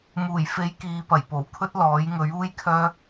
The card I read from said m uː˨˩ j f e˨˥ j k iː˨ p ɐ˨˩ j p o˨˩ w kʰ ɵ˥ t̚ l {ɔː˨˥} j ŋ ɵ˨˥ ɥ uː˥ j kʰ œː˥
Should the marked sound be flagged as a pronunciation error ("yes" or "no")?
no